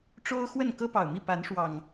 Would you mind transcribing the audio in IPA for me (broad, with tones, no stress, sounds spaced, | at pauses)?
ʈ͡ʂ o˦ ʊ̯ x w ə˥˨ n k ɤ˦ p ɑ˨˩ ʊ̯ m i˥˨ p a˨˦ n ʂ w ɑ˨˩ ŋ